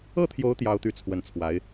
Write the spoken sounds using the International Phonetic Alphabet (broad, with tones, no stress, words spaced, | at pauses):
ɤ˥˩t̪ʰjo˧˥ʊ̯ t̪jɑ˥ʊ̯t̪y˥˩t͡sʰwə˧˥nt͡sʰwa˧˥ɪ̯